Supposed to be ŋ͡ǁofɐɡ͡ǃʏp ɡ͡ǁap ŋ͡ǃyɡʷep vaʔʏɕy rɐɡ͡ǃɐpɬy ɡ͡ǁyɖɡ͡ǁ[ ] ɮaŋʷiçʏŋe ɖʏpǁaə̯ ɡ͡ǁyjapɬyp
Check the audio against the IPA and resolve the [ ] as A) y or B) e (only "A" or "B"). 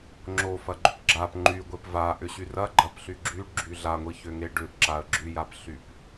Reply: A